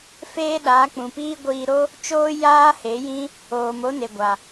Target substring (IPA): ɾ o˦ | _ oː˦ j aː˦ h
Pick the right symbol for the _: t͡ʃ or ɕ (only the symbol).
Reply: t͡ʃ